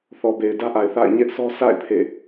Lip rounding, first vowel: rounded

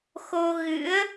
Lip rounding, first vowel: rounded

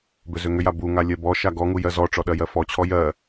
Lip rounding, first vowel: rounded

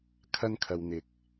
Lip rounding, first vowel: unrounded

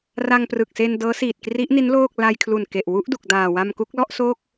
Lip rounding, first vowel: unrounded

